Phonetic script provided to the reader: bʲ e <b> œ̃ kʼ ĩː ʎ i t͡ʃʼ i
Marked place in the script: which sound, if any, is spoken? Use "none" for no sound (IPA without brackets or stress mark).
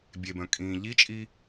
b